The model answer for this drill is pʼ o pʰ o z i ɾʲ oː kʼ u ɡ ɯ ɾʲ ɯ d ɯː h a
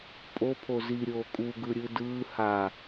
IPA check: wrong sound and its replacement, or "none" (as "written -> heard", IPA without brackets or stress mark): none